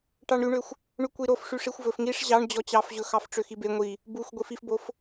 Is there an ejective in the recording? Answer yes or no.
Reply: no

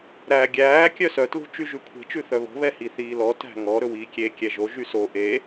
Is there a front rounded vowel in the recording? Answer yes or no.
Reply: yes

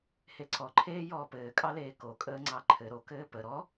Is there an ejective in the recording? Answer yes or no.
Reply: yes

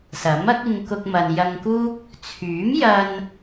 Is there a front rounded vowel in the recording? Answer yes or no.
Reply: yes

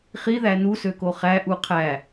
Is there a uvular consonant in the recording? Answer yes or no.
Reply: yes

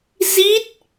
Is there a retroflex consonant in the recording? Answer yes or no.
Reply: no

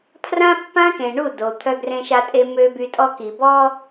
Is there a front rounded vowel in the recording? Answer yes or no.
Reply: yes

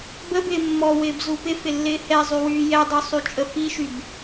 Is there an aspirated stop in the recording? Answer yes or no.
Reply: no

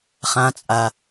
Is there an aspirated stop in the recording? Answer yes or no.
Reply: no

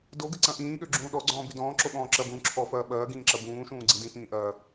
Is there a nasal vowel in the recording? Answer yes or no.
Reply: yes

